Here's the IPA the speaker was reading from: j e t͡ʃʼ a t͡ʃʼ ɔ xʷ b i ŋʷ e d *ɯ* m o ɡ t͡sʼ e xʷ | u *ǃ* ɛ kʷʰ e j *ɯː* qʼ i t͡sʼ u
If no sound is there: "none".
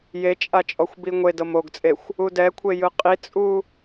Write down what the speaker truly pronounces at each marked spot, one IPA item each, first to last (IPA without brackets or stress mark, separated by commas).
ɤ, d, ɯ